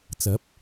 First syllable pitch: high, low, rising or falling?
rising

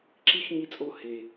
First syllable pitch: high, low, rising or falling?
high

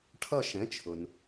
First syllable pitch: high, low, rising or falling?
falling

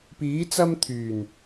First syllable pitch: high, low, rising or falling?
rising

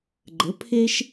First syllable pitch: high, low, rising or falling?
rising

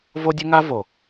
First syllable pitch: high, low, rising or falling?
high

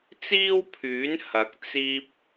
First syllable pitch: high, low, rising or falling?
high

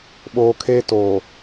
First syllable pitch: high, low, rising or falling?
low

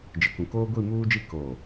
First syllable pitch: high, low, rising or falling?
low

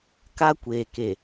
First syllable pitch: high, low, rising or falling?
high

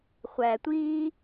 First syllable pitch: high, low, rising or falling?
low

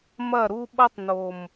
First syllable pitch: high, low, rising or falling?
falling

